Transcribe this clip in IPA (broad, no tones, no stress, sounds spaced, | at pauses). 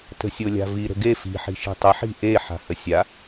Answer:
t ə̤ sʲ o lʲ a̤ v i ɾ ə̤ ɡ e f i̤ ħ i̤ ʃ i̤ tˤ ə ħ i̤ ʔ e ħ a̤ h ə sʲ a